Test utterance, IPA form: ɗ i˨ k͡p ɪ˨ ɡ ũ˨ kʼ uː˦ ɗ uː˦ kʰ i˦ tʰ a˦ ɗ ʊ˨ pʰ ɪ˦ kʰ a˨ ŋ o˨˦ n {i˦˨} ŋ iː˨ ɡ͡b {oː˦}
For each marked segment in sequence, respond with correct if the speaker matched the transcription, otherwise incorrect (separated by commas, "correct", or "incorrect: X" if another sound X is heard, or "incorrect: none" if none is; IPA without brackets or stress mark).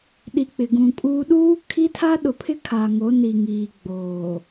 incorrect: i˨, incorrect: oː˨